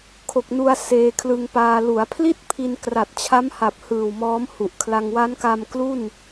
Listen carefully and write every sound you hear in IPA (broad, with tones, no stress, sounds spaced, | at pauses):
kʰ o˨˩ k̚ n u˧ a̯ s eː˧ kʰ l ɯ˧ ŋ p aː˧ l u˩˦ a̯ pʰ l i˥˩ t̚ pʰ i˧ n k r a˨˩ t̚ t͡ɕʰ a˦˥ m h a˨˩ p̚ h ɯː˨˩ w m ɔː˦˥ m h u˨˩ ʔ kʰ l a˧ ŋ w a˦˥ n k a˧ m k l u˥˩ n